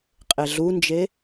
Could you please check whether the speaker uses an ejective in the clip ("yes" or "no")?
yes